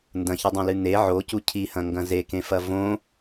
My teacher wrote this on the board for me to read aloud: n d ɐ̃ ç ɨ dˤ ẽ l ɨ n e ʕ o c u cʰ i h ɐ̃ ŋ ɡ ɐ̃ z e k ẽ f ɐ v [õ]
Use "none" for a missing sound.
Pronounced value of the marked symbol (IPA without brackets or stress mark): õ